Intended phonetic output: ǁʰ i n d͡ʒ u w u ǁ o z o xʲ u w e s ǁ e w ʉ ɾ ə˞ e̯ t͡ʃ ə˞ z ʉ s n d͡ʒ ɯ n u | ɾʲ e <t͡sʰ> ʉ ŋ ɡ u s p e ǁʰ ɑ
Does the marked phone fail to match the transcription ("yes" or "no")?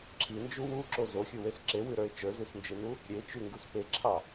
yes